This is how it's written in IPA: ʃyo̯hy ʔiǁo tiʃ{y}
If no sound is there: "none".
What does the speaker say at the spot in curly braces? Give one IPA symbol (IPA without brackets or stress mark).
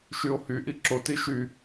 y